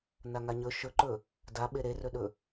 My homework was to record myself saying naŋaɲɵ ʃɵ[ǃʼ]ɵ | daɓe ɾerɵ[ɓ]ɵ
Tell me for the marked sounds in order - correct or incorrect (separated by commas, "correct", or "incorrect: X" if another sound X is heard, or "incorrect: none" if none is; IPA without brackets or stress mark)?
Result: incorrect: ǃ, incorrect: ɗ